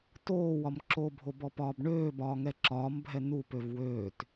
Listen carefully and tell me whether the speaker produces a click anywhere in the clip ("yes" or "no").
yes